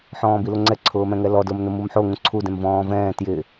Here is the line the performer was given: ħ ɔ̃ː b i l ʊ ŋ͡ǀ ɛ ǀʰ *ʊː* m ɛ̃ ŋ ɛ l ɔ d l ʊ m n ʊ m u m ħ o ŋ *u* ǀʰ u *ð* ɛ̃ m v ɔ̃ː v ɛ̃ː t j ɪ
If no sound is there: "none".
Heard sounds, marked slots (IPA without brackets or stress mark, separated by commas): ʊː, ũ, d